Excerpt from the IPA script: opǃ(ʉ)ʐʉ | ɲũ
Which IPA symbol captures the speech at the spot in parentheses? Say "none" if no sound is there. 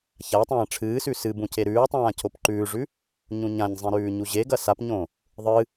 ʉː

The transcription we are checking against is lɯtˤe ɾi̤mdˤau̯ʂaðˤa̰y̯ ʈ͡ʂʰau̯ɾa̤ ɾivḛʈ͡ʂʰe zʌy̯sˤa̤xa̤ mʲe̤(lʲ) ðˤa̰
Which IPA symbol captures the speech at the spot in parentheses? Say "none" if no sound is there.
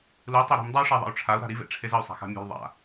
l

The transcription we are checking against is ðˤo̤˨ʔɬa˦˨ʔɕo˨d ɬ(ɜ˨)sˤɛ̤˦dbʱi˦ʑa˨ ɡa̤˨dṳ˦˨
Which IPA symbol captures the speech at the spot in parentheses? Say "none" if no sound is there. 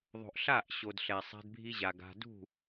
ɛ˨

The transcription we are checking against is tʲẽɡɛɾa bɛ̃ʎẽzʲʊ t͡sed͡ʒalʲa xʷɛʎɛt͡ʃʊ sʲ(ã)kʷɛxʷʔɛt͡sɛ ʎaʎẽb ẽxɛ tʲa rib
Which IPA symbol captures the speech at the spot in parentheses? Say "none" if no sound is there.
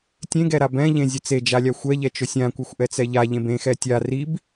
ã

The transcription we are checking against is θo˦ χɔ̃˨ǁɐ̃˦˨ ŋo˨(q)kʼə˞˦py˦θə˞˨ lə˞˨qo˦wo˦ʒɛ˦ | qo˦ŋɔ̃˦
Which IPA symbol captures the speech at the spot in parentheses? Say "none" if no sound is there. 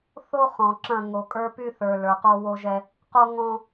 none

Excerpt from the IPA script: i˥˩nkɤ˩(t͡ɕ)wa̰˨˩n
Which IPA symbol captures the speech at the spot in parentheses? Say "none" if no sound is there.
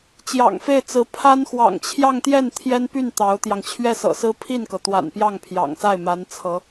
t̪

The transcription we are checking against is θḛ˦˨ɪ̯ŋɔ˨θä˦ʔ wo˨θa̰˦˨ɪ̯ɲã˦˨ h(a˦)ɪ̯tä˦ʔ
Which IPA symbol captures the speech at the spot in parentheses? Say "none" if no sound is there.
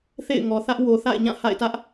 a̰˦˨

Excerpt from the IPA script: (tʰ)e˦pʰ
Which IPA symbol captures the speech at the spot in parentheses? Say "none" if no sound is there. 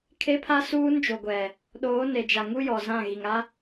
kʰ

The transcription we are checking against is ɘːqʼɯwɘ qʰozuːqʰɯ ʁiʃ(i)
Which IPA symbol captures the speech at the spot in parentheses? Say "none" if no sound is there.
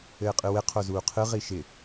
ɪ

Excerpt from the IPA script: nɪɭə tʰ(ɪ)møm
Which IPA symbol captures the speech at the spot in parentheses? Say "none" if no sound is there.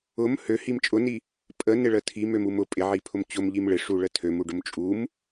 i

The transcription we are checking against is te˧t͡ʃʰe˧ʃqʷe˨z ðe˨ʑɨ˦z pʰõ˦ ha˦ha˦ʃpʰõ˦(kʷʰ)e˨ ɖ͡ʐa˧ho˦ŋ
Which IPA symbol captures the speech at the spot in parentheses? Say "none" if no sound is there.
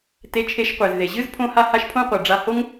qʷ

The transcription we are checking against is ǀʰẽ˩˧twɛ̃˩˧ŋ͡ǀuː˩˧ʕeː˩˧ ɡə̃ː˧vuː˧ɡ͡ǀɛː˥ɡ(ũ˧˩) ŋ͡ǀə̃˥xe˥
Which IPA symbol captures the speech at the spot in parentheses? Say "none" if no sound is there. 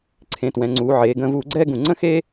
ũ˧˩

